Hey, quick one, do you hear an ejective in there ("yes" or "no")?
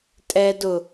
yes